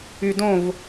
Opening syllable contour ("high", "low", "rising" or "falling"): low